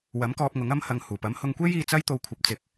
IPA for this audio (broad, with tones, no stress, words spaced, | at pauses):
wɐ˨˥mkɔː˧p̚ŋʊ˨˥ŋ ɐ˧m hɐ˨ŋhuː˨˩pɐ˨˥m hʊ˧ŋkʷe˥j iː˧t͡sɐ˥jt̪o˧w kʷʰɐ˨˥p̚t͡sɪ˨˥k̚